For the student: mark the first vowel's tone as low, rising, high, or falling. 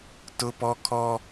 high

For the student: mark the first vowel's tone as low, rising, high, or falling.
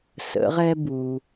rising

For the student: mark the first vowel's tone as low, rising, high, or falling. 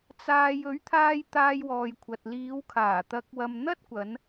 low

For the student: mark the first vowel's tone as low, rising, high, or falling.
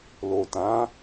low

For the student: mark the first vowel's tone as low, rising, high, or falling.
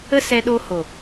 high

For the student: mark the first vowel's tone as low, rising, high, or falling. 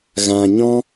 low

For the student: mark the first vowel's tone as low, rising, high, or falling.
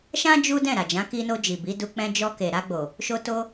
high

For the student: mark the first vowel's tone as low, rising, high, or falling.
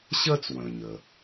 high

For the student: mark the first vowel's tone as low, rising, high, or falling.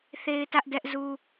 high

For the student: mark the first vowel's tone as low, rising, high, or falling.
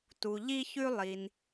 low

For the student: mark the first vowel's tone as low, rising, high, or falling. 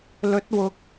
rising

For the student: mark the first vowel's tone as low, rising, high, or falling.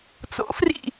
rising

